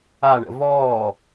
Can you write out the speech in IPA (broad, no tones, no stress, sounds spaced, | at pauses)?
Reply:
a ɳ ə̰ v ɔː